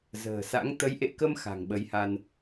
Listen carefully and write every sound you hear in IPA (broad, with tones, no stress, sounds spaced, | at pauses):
z ə̤ː˨˩ s a̰˧˥ ŋ t̪ ə˨˦ j ʔ ḛ˧˨ k ə˧ m x a̤˨˩ ŋ ɓ ə˨˦ j h a˧ n